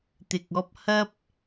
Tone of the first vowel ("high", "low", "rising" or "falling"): low